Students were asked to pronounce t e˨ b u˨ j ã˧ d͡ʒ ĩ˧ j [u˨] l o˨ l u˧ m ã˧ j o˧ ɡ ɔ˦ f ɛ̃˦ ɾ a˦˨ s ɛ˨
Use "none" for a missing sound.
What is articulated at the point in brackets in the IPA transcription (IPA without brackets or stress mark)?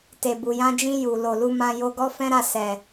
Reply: u˨